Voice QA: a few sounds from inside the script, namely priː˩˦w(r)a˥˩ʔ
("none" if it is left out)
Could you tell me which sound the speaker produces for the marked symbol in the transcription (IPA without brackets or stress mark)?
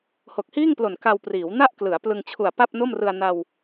n